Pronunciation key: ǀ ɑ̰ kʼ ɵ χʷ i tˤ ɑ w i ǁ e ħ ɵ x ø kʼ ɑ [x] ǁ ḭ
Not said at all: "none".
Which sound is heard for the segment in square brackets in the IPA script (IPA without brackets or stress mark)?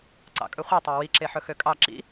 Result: none